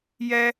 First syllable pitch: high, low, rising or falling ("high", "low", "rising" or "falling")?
high